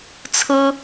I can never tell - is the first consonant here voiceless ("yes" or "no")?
yes